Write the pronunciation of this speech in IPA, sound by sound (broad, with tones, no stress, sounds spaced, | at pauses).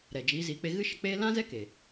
ɾ ɛ˨ d͡ʒ iː˨˦ z iː˨˦ k͡p e˧ ɣ ɨ˦ ʃ ə˧ k͡p eː˦ l ã˦ z ɛ˦ k e˨